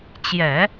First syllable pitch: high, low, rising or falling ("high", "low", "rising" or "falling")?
low